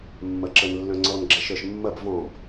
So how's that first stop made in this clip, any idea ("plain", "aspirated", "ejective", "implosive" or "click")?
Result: click